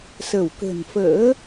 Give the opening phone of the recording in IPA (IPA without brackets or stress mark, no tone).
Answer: s